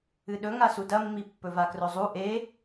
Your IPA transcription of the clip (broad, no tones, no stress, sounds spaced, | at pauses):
ɨ ɗ ɵ ŋ a s u d ɐ mː i pː ɵ v a k r ɵ zˤ u ʔ e